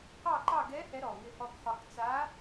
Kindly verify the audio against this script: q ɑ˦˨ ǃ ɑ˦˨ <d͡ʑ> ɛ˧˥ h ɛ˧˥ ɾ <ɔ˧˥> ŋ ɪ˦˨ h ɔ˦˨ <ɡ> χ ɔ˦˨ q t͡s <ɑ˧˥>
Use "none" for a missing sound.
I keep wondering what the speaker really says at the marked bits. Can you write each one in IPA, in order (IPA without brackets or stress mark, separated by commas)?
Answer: ɡ, ɔ˨˩, ɡ, a˧˥